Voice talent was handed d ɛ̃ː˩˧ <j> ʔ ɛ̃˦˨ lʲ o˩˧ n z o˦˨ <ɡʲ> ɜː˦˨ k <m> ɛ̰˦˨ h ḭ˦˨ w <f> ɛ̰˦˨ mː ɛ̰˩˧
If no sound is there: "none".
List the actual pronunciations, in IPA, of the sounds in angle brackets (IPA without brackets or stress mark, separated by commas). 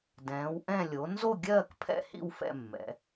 w, ɡʲ, pʰ, f